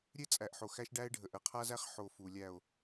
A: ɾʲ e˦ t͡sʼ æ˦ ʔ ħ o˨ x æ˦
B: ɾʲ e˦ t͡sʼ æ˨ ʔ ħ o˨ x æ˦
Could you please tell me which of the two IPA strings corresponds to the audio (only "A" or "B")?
B